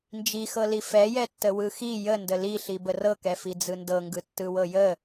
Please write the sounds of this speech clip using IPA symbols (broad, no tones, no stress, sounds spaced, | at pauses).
n d͡ʒ i x ɤ l i f ɛ j ɛ tː ə w ɯ x i j ə n d ə l i ɬ i b ə r ɤ k ɛ f i d͡z ɯ n d ɤ ŋ ɡ ɯ tː ɯ w ɤ j ə